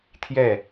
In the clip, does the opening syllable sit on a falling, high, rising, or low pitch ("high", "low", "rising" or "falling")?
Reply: falling